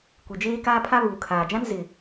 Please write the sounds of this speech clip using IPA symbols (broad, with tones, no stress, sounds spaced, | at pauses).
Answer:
kʷ i˨ d͡ʒ eː˦ k aː˦ pʰ a˦ β uː˨ kʰ aː˨ d͡ʒ ã˦ n z ɪ˨